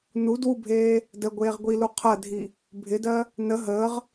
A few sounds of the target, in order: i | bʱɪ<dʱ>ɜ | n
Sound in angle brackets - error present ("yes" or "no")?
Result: yes